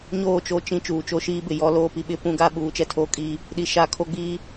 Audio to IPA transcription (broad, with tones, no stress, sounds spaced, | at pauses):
ɲ oː˦˨ t͡ʃ o˦˨ t͡ʃ ĩ˦˨ t͡ʃ uː˨ t͡ʃ o˦ ʃ iː˦ b ɪ˨ j ɔ˦ l oː˦ p i˨ ɓ ɪ˦ p ũ˦ ɡ a˦ ɓ uː˨˦ t͡ʃ ɛ˦ tʰ oː˦ kʼ iː˦ | ɗ i˨ ʃ a˦ kʰ o˦ ɡ͡b iː˦